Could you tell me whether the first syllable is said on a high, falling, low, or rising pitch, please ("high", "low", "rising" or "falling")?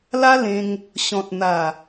high